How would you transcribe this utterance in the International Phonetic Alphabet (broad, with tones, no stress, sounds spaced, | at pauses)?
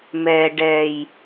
m ɛː˨ ɖ ɛː˨ j